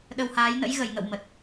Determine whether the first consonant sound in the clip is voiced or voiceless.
voiced